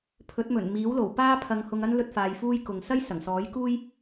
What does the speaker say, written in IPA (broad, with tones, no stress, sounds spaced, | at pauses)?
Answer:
pʰ ɵ˨˥ t̚ m ɵ˨˩ n m iː˨˥ w l o˨˩ w p aː˥ pʰ ɐ˨˧ ŋ h ʊ˧ ŋ ɐ˥ n l ɵ˥ t̚ f aː˧ j f uː˥ j k ʊ˨ ŋ s ɐ˥ j s ɐ˨˩ ŋ s ɔː˨˥ j k uː˥ j